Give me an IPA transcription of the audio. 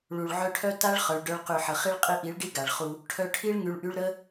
ɭ u˨ ɭ ʕ œ˧ ʈʰ œ˦ t a˦ ɭ χ œ˨ ɭ ɖ œ˧ ɭ q y˨ ħ ə˨ χ i˦ ɭ qʼ i˧ ʔ i˨˦ ɭ ɖ i˦ ɡ a˨ ɭ χ u˧ | ʈʰ œ˧ ʈʰ i˦ ɭ ŋ y˧ ɭ ʔ y˦ ɭ ɾ ə˦

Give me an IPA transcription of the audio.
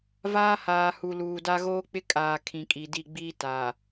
v aː˦ h aː˨ h u˨ l uː˨ d a˦ ɣ oː˦ k͡p ɪ˦ kʼ aː˨ kʰ ĩ˨ kʼ i˨ d i˦˨ ɡ͡b iː˦ t a˨

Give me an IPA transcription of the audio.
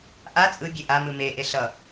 ʔ a t͡sʼ ɯ bʲ e ʔ a m ɯ m e ʔ e ɬ ʌ

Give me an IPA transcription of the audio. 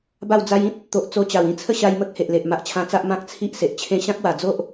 b a˥˧ w d͡z a˦ j ĩ˦ t̚ | t̪ o˨ ʔ t͡s o˧ t͡ɕ a˨˩ w ĩ˦ t͡sʰ ə˥˧ ɕ a˧ j m ə˦ k̚ h e˨ ʔ l e˨ ʔ m a˨ ʔ t͡ɕʰ ã˧ t͡s a˦ ʔ m ã˦ k̚ t͡sʰ i˦ ʔ s e˨ ʔ t͡ɕʰ ẽ˧ ɕ ã˦ k̚ w a˨˩ d͡z o˦ ʔ

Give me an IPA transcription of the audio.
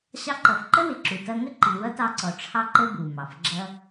ɕ ɑ˧ ǃ ʌ˩ f ǃ ə˥ w ɪ˩ ǁ u˩ t ʌ˧ ŋ ə˥ ǃ i˩ w ʌ˥ t ɑ˧ ǀ ɔ˩ ʈ͡ʂʰ ɑ˧ ǃ ə˧ b u˩ m ɑ˩ f ɡ͡ǁ ʌ˧

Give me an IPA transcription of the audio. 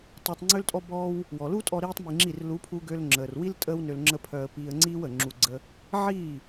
tˤ əː˧ tˤ ŋ͡ǀ ø˦ l tʼ ɔ˦ b ɔː˦ w | w ɔ˨ l u˦ tʼ ɔ˧ ɾ iː˦ tˤ m i˧ ŋ͡ǁ i˦˨ r l u˨˦ pʰ u˧ ɡ ø˧ l ŋ͡ǁ əː˨ r w i˦ l tʼ əː˦ w n ø˧ l ŋ͡ǁ ə˦ pʰ œ˧ ə̯ p iː˧ ə̯ ŋ͡ǀ iː˦ w əː˨ ŋ͡ǁ u˧ ɡ͡ǀ ə˧ | ʕ iː˦˨

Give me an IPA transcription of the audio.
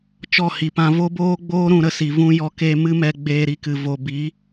t͡ʃ ɔ˦˨ h i˨ p ã˧ v o˦ b oː˦ ɡ͡b oː˦ ɾ ũ˧ ɾ ə˧ s i˨ v ũ˧ j ɔ˧ k e˧ m ɨ˦ m ɛ˧ ɡ͡b eː˧ ɾ i˧ k ɨ˨ v o˨ b i˨˦

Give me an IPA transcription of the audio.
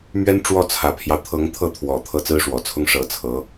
m ɥ ɛ˥ n ʈ͡ʂ w ɔ˥˩ t͡sʰ ä˨˩ pʰ j ɑ˦ ʊ̯ t̪ʰ ɤ˧˥ ŋ t̪ʰ ɤ˥˩ t̪ʰ w ɔ˨˩ t̪ʰ ɤ˥˩ t͡s ɹ̩˥ ʂ w ɔ˨˩ t͡sʰ ʊ˥ ŋ ʂ ɤ˧˥ t͡sʰ ɤ˧˥

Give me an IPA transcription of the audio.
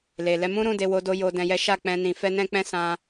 l e˨ l ɛ˧ m ũ˦ ɾ ũ˦˨ d e˧ w o˧ d o˧ j o˧ d ɛ̃˧ j ɛ˦ ʃ a˦˨ k͡p ɛ̃˧ n ĩ˧ f ɛ˦ n ɛ̃˦ k͡p ɛ̃˦ s ã˧

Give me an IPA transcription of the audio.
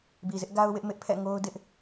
b i˨ z ɪ˦ ʔ ɡ a˦ ʊ̯ w ɪ˦ ʔ m ɪ˦ ʔ pʰ ɛ̰˦˨ ŋ o˦ ʊ̯ d ɪ˦ ʔ

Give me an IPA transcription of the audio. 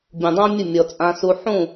bʲ ũ˨ dˤ ã˦ mʲ ə˦˨ mʲ ɔ˧ t͡sʼ ã˦ s u˦ ħ ũ˦˨

